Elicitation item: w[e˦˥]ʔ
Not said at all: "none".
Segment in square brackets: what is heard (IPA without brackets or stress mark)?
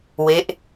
e˦˥